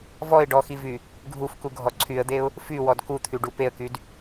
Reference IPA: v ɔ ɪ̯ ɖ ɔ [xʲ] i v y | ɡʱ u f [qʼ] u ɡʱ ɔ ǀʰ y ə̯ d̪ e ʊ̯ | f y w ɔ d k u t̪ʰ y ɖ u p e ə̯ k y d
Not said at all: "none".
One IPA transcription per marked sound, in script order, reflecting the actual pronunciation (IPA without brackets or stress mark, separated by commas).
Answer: x, k